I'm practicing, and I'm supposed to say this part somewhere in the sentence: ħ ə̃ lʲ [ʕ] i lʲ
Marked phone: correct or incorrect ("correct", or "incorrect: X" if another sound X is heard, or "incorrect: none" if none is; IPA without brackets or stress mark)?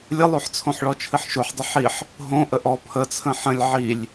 correct